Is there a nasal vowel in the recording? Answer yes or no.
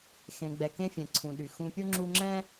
yes